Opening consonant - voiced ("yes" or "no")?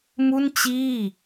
yes